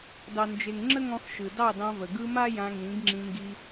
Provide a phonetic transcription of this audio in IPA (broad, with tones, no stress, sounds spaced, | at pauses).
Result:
d ɑ˨ n d͡ʒ e˨ ŋ ŋ͡ǁ ə˦ ŋ ɔ̃˧ x ʃ ɯ˨ d ɑ˦˨ d ɑ̃˧ v ə˨ ɡ ɯ˧ m a˦ j ã˧ ŋ ĩ˨˦ ɡ ŋ͡ǁ ĩ˧ ŋ ɡ i˧